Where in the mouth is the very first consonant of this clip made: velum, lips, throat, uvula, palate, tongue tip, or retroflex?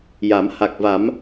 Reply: palate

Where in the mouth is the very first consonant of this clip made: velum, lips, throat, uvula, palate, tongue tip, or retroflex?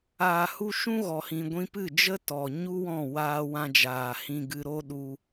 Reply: throat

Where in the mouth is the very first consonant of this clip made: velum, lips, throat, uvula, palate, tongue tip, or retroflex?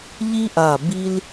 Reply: palate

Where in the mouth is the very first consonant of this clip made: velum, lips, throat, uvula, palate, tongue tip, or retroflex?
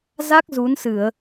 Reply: tongue tip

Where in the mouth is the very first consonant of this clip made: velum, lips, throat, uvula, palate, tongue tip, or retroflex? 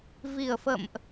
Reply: lips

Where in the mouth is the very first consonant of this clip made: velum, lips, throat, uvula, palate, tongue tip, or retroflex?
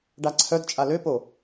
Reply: retroflex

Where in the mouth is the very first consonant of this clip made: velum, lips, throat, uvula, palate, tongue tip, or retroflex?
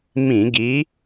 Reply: lips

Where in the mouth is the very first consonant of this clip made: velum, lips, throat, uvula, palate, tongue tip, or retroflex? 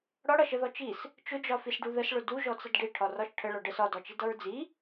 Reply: retroflex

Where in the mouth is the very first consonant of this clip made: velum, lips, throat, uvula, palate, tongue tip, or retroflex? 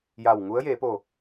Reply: palate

